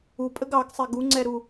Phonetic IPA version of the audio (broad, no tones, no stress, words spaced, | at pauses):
upʼəɡ ɑɡsˤɛ ɡuŋ͡ǀɛɾu